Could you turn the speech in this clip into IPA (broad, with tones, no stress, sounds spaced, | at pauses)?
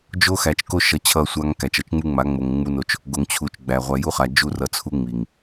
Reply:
d͡ʒ o˦ x æ˨ t͡ʃ k o˦ ʃ ʌ˨ t͡ɕʰ ʌ˦˨ sʷ a˦ ŋ k æ˨ t͡ʃ ʌ˦ t͡ʃ ŋ͡m u˦ ŋ͡m a˨˦ ŋ͡m o˨ ŋ ŋ͡m u˦ n o˦ t͡ʃ | ɡ o˨ ŋ t͡ɕʰ u˨ t͡ʃ ɡ͡b æ˨ ʁʷ æ˨ j u˦ χ a˨ d͡ʒ u˦ r ʌ˨ t͡sʰ u˦ ŋ͡m i˨ ŋ